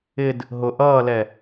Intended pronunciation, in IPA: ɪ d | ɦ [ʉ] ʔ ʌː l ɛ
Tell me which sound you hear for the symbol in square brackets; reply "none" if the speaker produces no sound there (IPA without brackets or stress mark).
ʊ